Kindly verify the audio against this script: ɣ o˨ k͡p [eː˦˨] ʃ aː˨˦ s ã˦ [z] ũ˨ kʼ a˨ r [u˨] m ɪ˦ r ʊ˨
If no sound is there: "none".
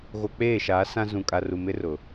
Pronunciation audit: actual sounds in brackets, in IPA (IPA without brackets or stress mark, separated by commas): eː˦˨, z, u˨